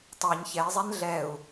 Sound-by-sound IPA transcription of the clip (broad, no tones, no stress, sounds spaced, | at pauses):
tˤ a ɲ ç ɛ i̯ zˤ ɛ n ɮ ɛ u̯